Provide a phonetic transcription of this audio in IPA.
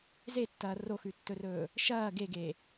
zetːɐː roxʉtːɵrɵː | ʃɐː ɡeɡe

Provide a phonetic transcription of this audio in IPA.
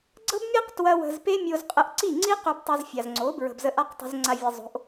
ɡ͡ǀɤ˦bmʲe˦q twɐ˦wə̤˧z pe˦mʲo˧z qʼə˧ʔǀi˦˨ŋ͡ǀi˦ qø˧btˤɐ˧zfʲa˨zŋ͡ǀo˨˦ bɹə̤˨bzə˧ʔa˦qtˤə̤˧z ŋ͡ǀa˧vʲɐ˧zˤo̤˨˦ʔ

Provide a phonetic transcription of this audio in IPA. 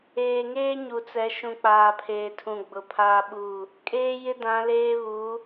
eː˨ŋeː˦ɲu˨t͡sɛ˨˦ ʃũ˨k͡paː˨pʰeː˨tʰũ˨ ɡ͡bʊ˨pʰaː˦ɓu˦˨ | kʼeː˦jɪ˦dã˨˦leː˦ βu˨˦

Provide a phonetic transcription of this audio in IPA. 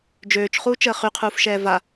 d͡ʒøːt͡ʃχuːt͡ʃəː χyqʰuːfʃɛː va

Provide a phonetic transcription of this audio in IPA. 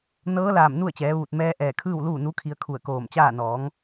nɤː˧˥laː˧˩m nu˥˨ə̯t͡ɕɛː˩˧ʋuː˧˩t̚ mɛː˧˥ ʔɛː˧˩kʰɯː˥˨w luː˥˨nu˧˥kʰi˧ə̯ kʰu˧˩ə̯koː˧˩mt͡ɕaː˥˨ nɔː˩˧ŋ

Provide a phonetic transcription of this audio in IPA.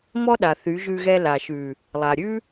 mɔ˦ɗa˨ θy˨˦ʒʉ˧ɣɛ˧ la˨ʃʉ˨ | lˠa˨ɾʲʉ˦

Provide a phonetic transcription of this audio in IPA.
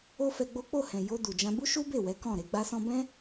o˦fɛ˧ɡ͡bo˦ k͡po˦˨hɛ̃˨ jo˧ du˨d͡ʒã˧ bu˦ʃu˦be˦˨wɛ˨˦ kɔ̃˦˨ ɾe˧ɡ͡ba˦sɔ̃˦ bɛ̃˦

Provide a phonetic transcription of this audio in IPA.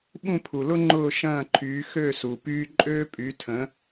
ɓũ˥˩pʰu˩lʊ˥ ŋ͡ǃʊː˥˩ʃɐ̃ː˥˩ǃʰyː˩˥ xø˥˩ su˩pyː˥ ǃʼøː˥pʼy˩˥tʰə̃˩˥

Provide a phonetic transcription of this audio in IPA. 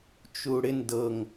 t͡ʃuɽɪn dɤŋ

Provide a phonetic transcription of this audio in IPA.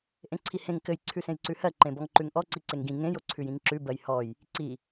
ʔẽǀʰihẽŋ kɘj ǀʰʉsẽjǀʉhɜ ǃẽbɔŋǃʉŋʔɔ ǀiǀeŋɡĩ ŋẽj oǀʰʉjĩŋǁʉ bɜjhɔj | ǀi

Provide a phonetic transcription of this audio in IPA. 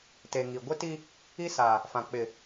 te˨ŋi˨ ɡʷɪ˦ti˦ | i˦sa˨ | fã˨ k͡pɪ˨

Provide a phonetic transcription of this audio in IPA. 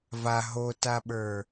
va ɦotaɓə˞

